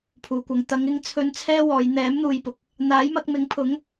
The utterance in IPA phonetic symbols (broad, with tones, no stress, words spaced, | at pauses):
pʰuː˨kʷɐ˨ŋ t̪ɐ˨˧ŋɪ˧ŋt͡sʰɵ˧n t͡sʰɛː˥wɔː˨˧j n̪ɛː˨˥mn̪uː˨jpʊ˨k̚ | n̪aː˨˥jmɐ˧k̚mɪ˨˥ŋpʰʊ˨˥ŋ